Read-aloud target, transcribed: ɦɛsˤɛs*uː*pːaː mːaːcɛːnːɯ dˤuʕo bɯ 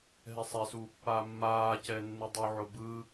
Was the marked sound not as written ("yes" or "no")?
no